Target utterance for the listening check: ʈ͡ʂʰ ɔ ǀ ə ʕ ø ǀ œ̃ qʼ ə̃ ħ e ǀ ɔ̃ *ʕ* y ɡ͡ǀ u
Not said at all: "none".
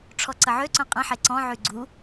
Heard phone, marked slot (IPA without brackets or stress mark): ʕ